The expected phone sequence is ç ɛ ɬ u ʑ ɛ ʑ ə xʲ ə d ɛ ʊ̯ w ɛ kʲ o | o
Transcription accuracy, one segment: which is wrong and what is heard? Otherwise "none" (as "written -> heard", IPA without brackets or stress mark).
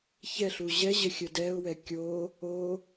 none